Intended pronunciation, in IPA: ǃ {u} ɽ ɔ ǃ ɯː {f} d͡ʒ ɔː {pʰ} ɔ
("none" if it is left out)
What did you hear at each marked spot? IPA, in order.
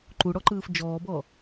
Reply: u, f, b

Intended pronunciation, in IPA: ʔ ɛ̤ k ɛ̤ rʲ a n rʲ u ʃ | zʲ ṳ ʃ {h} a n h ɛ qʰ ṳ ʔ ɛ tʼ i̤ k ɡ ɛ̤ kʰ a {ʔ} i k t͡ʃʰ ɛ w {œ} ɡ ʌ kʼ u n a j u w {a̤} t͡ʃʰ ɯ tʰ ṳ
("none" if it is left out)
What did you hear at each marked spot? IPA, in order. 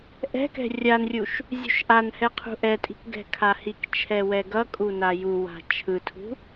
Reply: ʔ, h, ɛ, a̤

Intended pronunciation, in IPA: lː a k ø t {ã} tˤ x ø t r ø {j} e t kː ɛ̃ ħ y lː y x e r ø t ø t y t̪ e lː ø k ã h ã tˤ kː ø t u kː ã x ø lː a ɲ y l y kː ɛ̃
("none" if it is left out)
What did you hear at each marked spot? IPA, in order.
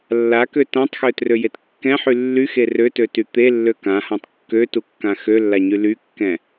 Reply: ã, j

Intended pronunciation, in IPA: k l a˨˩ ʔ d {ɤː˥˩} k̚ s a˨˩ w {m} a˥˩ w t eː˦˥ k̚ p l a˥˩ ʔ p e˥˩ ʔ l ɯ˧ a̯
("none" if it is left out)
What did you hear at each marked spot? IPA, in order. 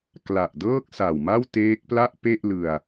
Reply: ɤː˥˩, m

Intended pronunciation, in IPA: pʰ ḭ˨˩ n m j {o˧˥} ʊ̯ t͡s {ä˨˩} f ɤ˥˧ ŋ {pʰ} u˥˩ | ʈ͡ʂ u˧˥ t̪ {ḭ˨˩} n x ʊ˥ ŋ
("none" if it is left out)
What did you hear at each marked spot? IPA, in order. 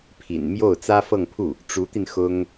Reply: o˥˩, ä˥, pʰ, i˧

